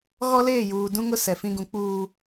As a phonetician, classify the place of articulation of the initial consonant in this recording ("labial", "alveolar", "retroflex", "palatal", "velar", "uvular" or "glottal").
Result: velar